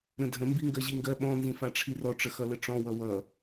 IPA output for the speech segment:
ɾ ə̃ dʱ ə̃ m b i ŋ ɡ ɜ ʑ i ŋ ɡ ɜ ɓ ɔ̃ n z ĩ f a ʈ͡ʂʰ i r ɔ ʈ͡ʂ ə x ʌ l ə ʈ͡ʂ ɔ̃ w ʌ w ʌ

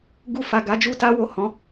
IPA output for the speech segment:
ɡ u˧ f a˨ ɡ a˨˦ d͡ʒ u˦ t a˦ w o˦˨ h ɔ̃˨˦

